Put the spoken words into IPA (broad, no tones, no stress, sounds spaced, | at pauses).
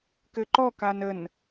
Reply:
k ɘ ǃ ɔ k a n ə n